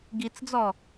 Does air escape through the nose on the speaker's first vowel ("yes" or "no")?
no